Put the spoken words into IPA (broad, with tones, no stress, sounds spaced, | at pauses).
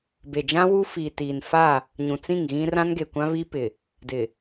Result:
b e˨ d͡ʒ ã˦ w u˦ f iː˨ t iː˨ n f a˦˨ | ɲ ũ˨ t͡s ĩ˦˨ ŋ ɣ ĩ˦ r ã˦ n ɡ e˨ kʷ ã˦ β i˦ p ɪ˨ | d ɪ˨